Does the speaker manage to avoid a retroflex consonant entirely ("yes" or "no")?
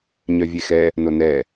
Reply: yes